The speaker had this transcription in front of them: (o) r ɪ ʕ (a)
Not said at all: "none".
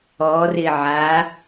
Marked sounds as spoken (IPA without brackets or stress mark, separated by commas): ɔ, a